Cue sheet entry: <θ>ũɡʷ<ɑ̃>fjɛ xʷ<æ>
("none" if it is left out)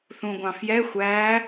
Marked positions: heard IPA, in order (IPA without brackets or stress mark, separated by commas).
θ, ɑ̃, æ